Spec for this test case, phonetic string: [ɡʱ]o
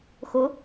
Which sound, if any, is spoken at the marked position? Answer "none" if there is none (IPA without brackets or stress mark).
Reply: x